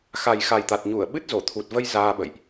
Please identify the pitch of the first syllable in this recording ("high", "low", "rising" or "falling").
low